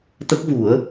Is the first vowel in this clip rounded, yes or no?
no